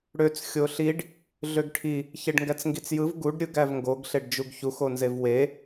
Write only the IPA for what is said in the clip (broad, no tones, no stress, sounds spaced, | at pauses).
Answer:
ɽ ø t͡s xʲ o ɬ i ɖ | ɮ ø ɡ ʈʰ i | ç e ɖ ŋ ɡ æ t͡s ŋ ɡ i t͡s j ɯ v ɡ u ɖ ɾʲ ɯ ɡ æ v ŋ ɡ o ɡ ɬ e ɖ d͡ʒ u ɡ ç u x o n z e v w e